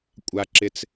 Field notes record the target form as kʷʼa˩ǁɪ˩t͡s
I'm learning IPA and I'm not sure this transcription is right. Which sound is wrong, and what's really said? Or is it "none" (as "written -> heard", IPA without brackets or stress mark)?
none